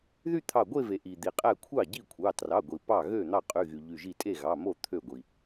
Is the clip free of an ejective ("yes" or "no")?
no